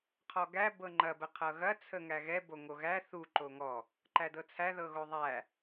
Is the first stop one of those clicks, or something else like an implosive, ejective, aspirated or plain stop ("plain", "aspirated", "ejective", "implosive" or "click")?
aspirated